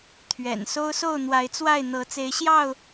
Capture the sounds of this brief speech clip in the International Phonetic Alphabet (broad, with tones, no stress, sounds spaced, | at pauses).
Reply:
t̪ʰ ɥ ɛ̰˨˩ n s o˦ ʊ̯ s o˥˨ ʊ̯ n̪ w a˨˦ ɪ̯ t͡s w a˥˨ ɪ̯ n̪ ɤ˨˦ t͡s e˨˦ ɪ̯ ɕ j ɑ˥˨ ʊ̯